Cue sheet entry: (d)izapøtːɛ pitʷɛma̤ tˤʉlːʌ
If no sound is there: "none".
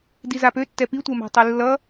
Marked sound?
d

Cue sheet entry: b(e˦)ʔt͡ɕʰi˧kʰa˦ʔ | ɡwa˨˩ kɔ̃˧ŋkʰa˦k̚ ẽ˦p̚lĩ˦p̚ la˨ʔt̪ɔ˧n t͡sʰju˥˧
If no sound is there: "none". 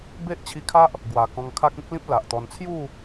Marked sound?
e˦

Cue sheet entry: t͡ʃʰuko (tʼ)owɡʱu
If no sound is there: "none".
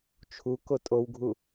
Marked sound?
tʼ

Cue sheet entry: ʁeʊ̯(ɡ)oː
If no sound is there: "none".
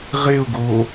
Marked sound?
ɡ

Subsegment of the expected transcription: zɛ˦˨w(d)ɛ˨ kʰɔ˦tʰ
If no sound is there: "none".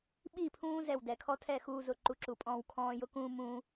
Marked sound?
d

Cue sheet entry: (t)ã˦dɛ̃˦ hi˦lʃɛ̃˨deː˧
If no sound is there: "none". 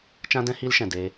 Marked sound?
t͡ʃ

